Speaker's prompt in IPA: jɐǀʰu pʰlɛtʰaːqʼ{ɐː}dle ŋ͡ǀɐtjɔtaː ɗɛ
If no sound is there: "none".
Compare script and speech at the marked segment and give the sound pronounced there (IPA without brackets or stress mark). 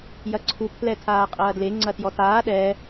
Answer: ɐː